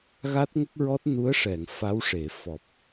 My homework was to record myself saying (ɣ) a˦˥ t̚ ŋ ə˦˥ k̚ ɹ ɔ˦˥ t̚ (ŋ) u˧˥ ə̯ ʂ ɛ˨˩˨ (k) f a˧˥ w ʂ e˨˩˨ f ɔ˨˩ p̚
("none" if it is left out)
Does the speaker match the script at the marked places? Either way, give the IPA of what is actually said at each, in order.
ɣ, n, ŋ

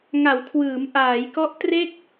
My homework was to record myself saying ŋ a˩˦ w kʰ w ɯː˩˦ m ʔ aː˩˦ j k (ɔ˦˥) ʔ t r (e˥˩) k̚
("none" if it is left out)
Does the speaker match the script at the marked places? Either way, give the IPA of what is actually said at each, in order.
ɔ˦˥, e˥˩

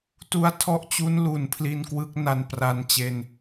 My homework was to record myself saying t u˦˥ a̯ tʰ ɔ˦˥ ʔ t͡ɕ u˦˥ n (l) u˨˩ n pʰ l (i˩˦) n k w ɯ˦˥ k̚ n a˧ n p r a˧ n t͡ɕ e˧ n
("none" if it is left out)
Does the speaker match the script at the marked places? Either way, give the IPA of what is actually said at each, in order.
l, i˧

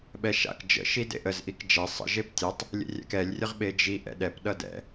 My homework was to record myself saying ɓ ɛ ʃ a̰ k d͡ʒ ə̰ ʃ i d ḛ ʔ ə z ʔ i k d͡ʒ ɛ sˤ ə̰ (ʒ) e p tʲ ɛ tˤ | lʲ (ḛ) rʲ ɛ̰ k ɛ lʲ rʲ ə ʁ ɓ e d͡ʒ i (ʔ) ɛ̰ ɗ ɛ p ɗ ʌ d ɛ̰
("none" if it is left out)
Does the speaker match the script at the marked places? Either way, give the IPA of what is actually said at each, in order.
ʒ, ḛ, ʔ

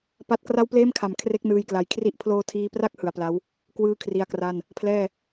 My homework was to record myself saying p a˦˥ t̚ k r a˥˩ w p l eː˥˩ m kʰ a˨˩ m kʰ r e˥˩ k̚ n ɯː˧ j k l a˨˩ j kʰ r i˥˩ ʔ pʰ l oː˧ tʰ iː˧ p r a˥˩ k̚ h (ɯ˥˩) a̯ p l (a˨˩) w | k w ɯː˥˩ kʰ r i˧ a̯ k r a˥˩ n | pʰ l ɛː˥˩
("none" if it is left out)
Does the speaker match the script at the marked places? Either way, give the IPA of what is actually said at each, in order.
ɯ˨˩, a˦˥

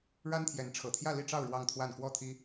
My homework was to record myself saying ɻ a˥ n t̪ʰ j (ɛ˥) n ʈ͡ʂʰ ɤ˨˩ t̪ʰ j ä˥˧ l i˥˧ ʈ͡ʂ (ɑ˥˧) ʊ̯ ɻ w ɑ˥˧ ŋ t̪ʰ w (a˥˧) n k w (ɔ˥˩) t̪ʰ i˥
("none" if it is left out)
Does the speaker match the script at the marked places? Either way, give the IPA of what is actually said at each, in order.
ɛ˧˥, ɑ˥˧, a˥˧, ɔ˥˩

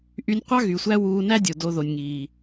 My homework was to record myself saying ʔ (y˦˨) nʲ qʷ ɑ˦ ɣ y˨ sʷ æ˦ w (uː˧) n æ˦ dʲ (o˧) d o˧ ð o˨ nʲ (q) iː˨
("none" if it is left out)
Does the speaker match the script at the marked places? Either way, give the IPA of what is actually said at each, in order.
y˧, uː˧, o˨, ŋ

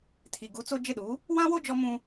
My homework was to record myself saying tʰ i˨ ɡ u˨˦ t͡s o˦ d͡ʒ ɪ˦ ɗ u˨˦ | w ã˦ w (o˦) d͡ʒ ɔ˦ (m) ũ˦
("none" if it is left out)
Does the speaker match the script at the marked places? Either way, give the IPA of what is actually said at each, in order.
o˦, m

